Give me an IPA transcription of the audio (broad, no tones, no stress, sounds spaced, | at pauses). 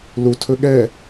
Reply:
l u tʰ ɵ ɠ ɛ